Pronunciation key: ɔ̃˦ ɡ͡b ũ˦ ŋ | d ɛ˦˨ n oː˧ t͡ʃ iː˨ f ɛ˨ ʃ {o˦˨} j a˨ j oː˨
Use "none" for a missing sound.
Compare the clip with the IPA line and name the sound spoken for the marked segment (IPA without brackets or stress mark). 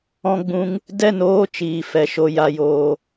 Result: o˨